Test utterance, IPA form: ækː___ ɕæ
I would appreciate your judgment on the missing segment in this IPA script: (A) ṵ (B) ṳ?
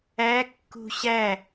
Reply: B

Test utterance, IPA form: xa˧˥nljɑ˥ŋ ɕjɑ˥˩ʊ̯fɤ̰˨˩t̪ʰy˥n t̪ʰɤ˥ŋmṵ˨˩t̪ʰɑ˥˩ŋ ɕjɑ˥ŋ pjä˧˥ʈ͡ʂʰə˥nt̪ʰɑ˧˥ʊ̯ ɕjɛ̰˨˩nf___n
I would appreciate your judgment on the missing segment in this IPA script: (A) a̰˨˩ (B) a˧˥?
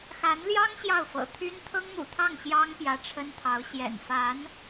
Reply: B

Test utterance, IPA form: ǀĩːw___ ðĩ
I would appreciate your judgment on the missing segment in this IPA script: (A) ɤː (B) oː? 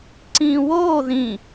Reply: B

